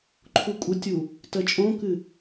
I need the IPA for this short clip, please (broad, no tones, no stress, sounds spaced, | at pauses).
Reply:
ǃʰ u kʷʼ ə tʲ u | t ɜ t͡ʃʼ õ k ɨ